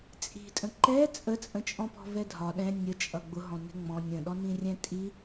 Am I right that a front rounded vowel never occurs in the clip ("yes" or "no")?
yes